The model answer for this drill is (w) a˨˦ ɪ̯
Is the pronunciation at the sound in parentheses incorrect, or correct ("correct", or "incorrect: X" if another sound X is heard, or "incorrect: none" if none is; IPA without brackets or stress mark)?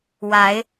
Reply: correct